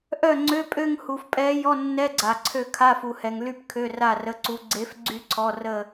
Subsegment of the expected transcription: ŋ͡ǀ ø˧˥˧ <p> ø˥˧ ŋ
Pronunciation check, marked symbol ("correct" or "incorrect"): incorrect